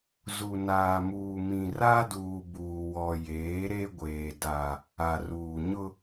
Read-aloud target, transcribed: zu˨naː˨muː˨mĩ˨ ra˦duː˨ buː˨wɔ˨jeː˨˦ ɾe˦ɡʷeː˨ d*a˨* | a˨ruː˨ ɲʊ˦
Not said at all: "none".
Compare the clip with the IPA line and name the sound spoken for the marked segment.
a˨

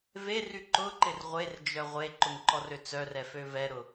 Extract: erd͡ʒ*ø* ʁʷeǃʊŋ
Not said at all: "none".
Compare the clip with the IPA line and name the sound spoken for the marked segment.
œ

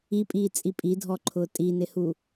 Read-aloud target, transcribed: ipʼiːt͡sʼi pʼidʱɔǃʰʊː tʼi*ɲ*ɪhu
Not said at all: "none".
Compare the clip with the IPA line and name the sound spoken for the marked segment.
n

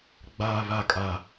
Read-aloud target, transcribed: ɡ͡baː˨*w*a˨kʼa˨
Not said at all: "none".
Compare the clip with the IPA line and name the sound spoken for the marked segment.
β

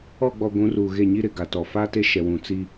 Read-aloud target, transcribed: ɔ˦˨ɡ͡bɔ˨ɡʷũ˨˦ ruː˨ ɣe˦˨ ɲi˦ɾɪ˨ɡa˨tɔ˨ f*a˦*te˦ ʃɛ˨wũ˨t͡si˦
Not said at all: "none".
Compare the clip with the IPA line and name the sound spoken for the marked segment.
a˦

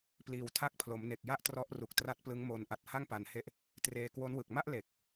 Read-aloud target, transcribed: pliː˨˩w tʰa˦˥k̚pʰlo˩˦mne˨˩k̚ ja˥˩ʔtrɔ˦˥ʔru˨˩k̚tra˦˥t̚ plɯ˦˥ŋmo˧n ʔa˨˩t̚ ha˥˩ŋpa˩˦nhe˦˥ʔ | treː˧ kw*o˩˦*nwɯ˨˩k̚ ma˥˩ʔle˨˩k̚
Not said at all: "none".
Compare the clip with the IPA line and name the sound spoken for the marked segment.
o˦˥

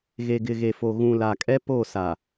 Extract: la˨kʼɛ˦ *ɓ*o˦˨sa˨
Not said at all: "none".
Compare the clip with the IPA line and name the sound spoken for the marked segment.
p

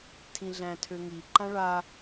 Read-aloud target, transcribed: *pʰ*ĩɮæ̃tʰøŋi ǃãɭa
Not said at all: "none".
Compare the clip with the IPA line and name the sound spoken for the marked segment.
tʰ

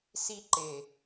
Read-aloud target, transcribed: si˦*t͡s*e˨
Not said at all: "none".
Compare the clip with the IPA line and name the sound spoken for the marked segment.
ǃ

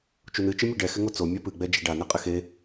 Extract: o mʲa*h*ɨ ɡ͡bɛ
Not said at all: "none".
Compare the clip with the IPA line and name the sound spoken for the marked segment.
p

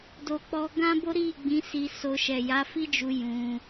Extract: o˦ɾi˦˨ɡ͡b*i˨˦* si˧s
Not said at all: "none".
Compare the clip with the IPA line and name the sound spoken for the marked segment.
ĩ˨˦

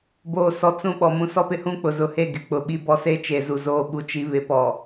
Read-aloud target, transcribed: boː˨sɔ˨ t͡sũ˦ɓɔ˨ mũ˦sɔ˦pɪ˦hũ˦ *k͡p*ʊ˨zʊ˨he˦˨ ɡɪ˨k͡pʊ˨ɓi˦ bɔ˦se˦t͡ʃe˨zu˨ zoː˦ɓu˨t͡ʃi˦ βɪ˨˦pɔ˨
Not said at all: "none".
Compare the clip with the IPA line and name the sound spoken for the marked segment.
k͡p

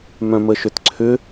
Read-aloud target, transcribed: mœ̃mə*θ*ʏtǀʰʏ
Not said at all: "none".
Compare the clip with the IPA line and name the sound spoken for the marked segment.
ʃ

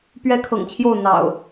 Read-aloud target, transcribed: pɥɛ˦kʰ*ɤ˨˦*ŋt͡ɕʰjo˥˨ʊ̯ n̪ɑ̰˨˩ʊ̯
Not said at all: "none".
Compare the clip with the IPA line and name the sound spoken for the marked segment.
ɤ̰˨˩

